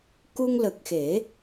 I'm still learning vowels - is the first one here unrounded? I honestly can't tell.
no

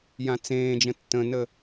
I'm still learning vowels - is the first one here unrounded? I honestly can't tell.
yes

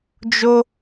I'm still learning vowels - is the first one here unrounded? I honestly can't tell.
no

